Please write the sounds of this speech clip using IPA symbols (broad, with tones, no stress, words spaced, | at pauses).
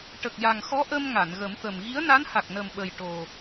ʈə˨˩k̚ja˨˩ŋxɔ˧˥ʔə˧m ŋa˨˩˨nɣə˨˩˦mt̪ə˨˩m ɣi˧˥ə̯na˧˥nha˨˩k̚nə˨˩m ɓə˨˩jʈo˨˩